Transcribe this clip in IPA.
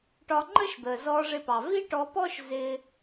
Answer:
ʈ ɒ˧ ŋ͡ǃ ə˥ ʃ d̪ əː˩ z ɔː˧ ʐ ɪ˧ p ɑ˩ v i˥ ʈ ɔ˧ p ɔː˥ ʃ z ɪː˧

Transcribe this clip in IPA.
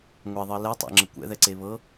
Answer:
ŋʷ e ðˤ ɤ l ɛ tˤ ḛ ŋ͡ǁ ə kʷ ɛ̰ ð ɛ ǀ e β ɤ

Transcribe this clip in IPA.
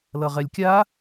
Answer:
l ʌ ʁ ɛ lʲ kʲ a

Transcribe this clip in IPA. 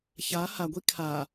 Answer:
ç a h a ɡʷ i kʰ a

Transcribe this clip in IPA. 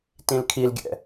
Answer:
t ĩ l kʰ i l ɡʲ ɛ̰

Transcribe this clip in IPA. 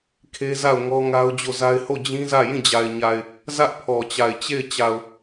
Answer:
kʰ e˦ z a˦˨ ʊ̯ ŋ ɔ˦ ŋ a˦ ʊ̯ d͡ʑ o˦˨ z a˦ ɪ̯ h o˦˨ d͡ʑ ĩ˦ z ä˦˨ j ĩ˦˨ d͡ʑ a˨ ɪ̯ ɲ a˨ ɪ̯ | z ä˦ ʔ pʰ ɔ˨ t͡ɕ a˨ ɪ̯ t͡ɕ e˦˨ ɪ̯ t͡ɕ a˨ ʊ̯

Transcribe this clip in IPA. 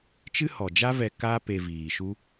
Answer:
t͡ʃ ɨ˦ h ɔ˨ d͡ʒ a˦ v ɛ˧ k aː˦ p e˧ v iː˨ ʃ u˦

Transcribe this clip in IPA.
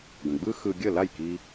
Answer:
ɡ ə̃˩ ɡ͡b ɯ˥ x ɯ˧ ɡʲ ə˥˩ l a˥˩ j k i˧

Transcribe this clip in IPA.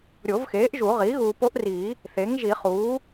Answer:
ɾʲ o˨˩˦ v x eː˩˥ ʔ ʒ u˨˩˦ ʁ iː˩˥ ɣ uː˨ p o˧˥ ʔ r i˨˩˦ | θ e˩˥ ŋ ʒ i˨˩˦ χ uː˩˥

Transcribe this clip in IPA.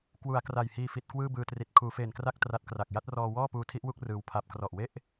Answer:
k w u˩˦ a̯ k r a˨˩ j h iː˧ f i˨˩ t̚ k w ɯː˥˩ b ɯː˧ t r i˨˩ t̚ kʰ uː˩˦ f eː˨˩ n k r a˥˩ k̚ t r a˦˥ t̚ k r a˨˩ k̚ j a˦˥ t̚ r ɔː˧ w ɔː˥˩ p uː˦˥ tʰ i˦˥ ʔ w u˥˩ k̚ r ɯː˧ w pʰ a˦˥ p̚ k r ɔ˨˩ ʔ w e˥˩ ʔ

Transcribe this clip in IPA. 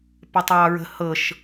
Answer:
p ə tˤ ɑː ɹ ə̤ h ɤ ʃ

